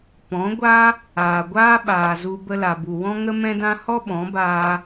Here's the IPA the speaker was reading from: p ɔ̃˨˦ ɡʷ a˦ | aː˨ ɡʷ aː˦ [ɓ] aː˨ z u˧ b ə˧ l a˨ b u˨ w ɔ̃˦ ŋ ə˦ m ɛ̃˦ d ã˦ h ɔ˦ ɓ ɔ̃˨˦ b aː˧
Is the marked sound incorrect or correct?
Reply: correct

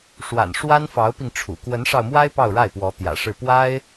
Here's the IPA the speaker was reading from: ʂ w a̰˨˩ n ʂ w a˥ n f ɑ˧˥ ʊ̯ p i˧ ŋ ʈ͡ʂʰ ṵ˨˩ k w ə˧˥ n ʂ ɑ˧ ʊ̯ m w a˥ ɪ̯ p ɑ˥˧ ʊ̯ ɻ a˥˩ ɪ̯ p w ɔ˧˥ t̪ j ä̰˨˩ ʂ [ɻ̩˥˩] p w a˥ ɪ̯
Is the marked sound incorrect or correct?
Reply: correct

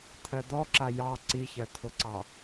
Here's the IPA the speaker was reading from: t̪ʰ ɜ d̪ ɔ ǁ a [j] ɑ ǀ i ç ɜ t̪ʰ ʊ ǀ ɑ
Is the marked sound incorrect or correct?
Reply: correct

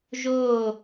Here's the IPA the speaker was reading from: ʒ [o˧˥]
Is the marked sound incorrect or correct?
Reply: incorrect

